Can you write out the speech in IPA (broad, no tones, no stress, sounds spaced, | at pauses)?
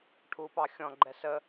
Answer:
ʈʰ u p ɑ xʲ ɔ̃ ɡ͡ǃ ɛ s ə